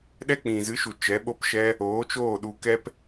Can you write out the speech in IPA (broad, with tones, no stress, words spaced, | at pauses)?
ɗɛ˦k͡pĩ˨zɨ˨˦ʃu˨ t͡ʃɛ˨˦ɓo˦pʃɛ˦ | oː˨˦t͡ʃoː˦˨ ɗu˧kɛ˦p